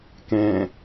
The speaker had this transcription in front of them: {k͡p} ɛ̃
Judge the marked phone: incorrect: k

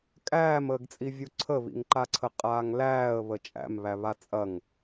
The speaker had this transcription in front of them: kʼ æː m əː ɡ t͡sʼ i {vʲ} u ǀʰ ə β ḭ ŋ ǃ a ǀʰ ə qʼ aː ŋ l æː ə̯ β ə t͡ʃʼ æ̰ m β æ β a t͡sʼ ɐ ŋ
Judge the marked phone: correct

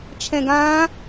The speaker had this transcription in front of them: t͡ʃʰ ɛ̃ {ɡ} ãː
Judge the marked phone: correct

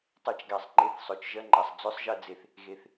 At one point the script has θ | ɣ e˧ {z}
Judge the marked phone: incorrect: θ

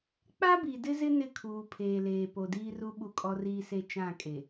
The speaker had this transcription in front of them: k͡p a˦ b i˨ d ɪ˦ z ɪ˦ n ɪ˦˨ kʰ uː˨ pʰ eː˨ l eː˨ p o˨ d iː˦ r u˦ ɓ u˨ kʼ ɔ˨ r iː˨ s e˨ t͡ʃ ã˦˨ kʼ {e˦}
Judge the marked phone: incorrect: e˨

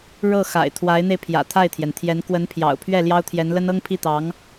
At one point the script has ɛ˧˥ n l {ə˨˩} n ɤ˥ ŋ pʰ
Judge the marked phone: incorrect: ə˥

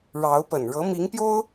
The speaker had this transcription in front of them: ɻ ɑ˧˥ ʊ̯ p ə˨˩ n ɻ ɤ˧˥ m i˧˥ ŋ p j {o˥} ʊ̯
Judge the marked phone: correct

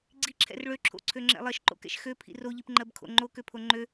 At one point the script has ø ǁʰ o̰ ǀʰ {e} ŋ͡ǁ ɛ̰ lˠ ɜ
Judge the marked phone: incorrect: ø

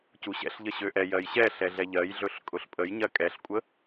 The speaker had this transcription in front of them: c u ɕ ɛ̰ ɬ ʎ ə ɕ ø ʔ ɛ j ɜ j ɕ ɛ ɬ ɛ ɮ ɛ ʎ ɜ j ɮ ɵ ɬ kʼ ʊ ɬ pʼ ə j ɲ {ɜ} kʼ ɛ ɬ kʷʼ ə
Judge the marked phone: correct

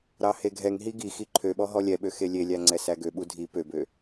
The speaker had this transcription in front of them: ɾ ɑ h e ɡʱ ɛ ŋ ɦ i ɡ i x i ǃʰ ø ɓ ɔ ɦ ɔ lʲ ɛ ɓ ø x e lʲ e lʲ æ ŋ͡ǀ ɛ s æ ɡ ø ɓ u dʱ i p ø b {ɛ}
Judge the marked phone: incorrect: ø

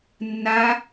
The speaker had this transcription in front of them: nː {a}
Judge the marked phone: correct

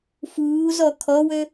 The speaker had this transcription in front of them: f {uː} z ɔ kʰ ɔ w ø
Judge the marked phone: correct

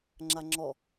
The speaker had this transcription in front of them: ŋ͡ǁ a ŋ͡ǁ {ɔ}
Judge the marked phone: correct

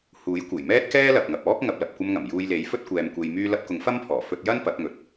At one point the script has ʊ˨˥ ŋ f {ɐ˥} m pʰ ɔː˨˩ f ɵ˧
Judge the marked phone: correct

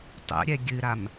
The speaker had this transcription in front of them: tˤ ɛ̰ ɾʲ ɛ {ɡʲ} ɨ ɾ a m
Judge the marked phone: correct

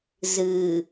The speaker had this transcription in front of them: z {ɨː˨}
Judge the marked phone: correct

